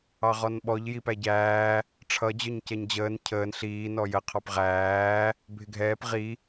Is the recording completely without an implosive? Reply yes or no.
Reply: no